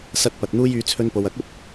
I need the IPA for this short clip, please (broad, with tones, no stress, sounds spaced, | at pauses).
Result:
s ɐ˧ t̚ p ɐ˨ t̚ n̪ uː˥ j yː˨˧ t͡sʰ ɵ˧ n p o˨ w ɐ˨˥ k̚ ɵ˥ t̚